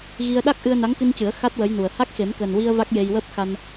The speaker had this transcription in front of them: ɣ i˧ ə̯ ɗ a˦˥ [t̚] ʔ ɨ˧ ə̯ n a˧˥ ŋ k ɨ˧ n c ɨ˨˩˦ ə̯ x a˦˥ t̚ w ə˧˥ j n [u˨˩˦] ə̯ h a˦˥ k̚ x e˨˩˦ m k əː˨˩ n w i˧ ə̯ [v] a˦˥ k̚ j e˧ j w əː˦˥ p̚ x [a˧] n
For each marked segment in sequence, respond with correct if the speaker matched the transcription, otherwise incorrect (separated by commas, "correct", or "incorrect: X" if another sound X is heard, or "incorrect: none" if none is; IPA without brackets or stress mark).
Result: incorrect: k̚, incorrect: u˨˩, correct, correct